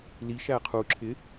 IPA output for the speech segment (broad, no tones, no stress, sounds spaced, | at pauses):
l i ʃ æ qʰ u ǁʰ ɪ